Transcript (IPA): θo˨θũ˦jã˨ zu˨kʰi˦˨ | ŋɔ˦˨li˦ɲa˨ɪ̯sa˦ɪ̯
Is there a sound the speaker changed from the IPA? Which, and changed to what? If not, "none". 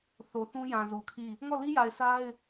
ɲ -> j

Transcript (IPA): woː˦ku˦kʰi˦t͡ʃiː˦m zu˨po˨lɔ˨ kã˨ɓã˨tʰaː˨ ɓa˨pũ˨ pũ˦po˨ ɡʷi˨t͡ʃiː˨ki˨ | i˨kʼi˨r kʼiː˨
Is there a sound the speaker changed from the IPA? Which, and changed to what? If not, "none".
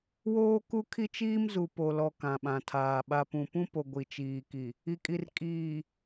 none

